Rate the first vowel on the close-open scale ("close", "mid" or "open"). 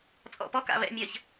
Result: mid